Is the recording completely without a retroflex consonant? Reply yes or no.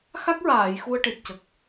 no